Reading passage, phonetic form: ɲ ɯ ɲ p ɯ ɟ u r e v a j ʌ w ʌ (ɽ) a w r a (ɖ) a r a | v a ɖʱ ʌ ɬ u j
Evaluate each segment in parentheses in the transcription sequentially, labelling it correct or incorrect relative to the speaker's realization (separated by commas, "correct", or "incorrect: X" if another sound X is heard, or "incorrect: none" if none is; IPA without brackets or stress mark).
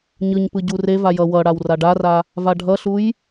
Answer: correct, correct